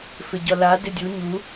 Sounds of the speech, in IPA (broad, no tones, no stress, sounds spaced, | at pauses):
f ɪ ɟ ɔ l a d ɪ dʲ u ɲ u